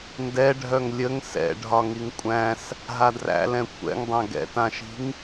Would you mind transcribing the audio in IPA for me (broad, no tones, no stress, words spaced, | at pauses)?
ndɛɖʱœŋ lʲəŋ sɛ̰ɖʱɒ ŋiŋkʷʼæ̃s | ɦadræ̰ lɛ̃kʷʰɛ̰ŋdˤã ɡɛ̰tãʃi̤ŋ